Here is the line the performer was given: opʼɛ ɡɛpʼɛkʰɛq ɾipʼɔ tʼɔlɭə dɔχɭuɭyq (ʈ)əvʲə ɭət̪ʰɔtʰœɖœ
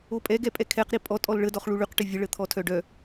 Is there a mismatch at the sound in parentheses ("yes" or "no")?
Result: no